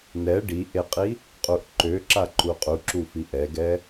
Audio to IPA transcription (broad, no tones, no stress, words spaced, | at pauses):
nɛ ɖiʔeqʼi | qʼuʔǃøǁaǃu qʼuǁufi ʔɛɡɛ